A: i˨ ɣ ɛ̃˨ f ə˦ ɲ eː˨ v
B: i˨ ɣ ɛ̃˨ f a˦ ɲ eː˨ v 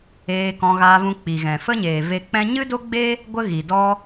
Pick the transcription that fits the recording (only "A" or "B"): A